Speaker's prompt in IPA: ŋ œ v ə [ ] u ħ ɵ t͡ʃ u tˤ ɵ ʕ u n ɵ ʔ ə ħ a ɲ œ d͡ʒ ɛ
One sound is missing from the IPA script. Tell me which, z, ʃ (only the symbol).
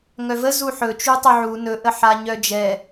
z